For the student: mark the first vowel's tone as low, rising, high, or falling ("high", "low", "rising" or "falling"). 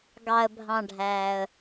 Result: low